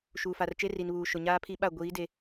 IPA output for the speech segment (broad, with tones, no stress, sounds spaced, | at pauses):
ʃ uː˨ f a˨ r t͡ʃ e˦ r i˨ n β uː˨ ʃ ʊ˨ ɲ aː˦ pʰ i˦ ɓ a˦˨ ɡʷ iː˨˦ d e˨